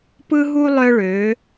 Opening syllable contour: high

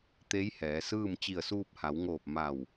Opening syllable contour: rising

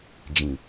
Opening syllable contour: low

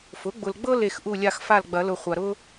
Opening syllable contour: rising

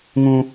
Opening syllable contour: high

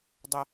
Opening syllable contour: high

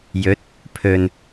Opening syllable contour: rising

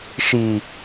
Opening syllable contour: low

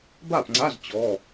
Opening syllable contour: falling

